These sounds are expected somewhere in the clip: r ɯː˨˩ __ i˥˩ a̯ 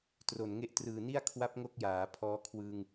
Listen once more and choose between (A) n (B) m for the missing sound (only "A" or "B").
A